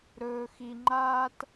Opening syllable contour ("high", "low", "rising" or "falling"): low